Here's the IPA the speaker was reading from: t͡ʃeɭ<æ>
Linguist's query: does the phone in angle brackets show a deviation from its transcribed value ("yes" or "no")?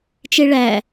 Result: no